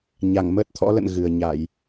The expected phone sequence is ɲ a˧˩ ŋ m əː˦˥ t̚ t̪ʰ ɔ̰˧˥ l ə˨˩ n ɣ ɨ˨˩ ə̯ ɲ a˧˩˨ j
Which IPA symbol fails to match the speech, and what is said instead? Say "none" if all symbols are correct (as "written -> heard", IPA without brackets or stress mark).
ə˨˩ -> ə̰˧˨